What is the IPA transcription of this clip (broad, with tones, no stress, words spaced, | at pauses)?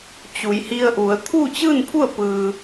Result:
t͡ɕu˩˧jhi˧ə̯ʔu˩˧ə̯ t̪ʰu˥˨ t͡ɕɯː˥˨npʰu˥˨ə̯ pɯː˧